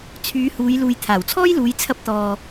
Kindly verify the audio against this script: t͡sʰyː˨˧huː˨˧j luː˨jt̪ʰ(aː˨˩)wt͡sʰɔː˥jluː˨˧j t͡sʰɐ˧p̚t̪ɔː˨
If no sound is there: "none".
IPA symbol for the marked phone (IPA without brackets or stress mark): aː˨˩